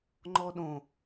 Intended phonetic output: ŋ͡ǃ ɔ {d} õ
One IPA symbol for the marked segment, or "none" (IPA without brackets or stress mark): ɗ